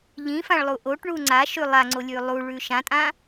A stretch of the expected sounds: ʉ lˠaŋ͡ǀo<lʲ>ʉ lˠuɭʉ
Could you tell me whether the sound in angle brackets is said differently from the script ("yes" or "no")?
no